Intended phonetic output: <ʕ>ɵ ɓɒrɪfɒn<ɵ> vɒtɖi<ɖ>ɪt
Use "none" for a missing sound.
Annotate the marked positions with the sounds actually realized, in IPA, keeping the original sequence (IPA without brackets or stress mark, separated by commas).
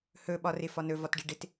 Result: h, ɵ, ɖ